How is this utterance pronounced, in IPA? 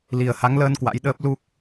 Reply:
li˧˩ə̯ha˨˦ŋləː˧n kwa̰˧˥jɗəː˦˥p̚ lu˦˥k̚

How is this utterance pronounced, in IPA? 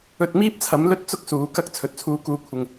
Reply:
ɵ˧t̚miː˥p̚t͡sʰɐ˨˥m lɵ˥t̚t͡sʊ˥k̚suː˨˥ kɐ˧k̚ t͡sʰɵ˨˥t̚t͡sʰuː˧kuː˧kʷʰɪ˨ŋ

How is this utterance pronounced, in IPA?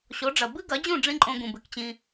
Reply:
ɕo˩˥ɖ͡ʐɐ˩ bɨ˥ɡɐ˩˥d͡ʑũ˥˩ ɖ͡ʐĩ˥ǃʼõ˧ ɡũ˩bɨ˩kt͡ɕĩ˧

